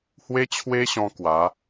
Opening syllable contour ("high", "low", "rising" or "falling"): high